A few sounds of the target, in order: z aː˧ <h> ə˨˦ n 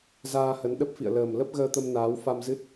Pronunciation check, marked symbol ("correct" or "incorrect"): correct